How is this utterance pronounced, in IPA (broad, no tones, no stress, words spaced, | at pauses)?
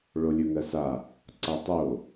ɭolʲɵŋɜsa | ǀatˤo